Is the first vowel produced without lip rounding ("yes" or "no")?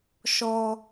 no